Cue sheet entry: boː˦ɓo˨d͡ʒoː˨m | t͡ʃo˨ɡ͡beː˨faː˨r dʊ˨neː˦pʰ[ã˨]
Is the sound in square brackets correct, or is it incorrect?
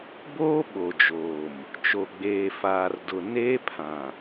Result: correct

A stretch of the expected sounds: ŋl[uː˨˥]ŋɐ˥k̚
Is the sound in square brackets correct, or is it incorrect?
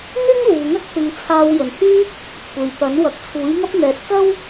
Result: incorrect: uː˨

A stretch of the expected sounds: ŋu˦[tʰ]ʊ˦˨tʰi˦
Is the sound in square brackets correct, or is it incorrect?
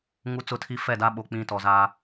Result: incorrect: t͡s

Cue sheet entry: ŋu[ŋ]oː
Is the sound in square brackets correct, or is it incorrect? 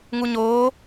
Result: incorrect: ɲ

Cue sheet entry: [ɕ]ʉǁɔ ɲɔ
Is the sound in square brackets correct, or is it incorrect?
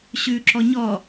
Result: correct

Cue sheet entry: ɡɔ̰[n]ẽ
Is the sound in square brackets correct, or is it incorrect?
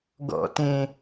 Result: incorrect: t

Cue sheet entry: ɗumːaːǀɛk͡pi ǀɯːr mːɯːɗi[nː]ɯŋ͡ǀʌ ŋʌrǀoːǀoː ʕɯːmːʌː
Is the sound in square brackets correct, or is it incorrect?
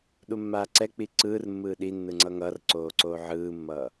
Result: correct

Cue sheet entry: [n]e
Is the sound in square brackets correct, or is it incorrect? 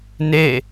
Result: correct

